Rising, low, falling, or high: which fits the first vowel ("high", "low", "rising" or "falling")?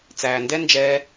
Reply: low